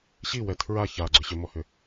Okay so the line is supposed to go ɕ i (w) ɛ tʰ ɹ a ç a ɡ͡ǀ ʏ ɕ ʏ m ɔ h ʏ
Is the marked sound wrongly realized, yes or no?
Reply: no